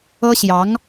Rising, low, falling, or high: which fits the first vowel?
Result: high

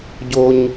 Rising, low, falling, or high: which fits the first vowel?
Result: high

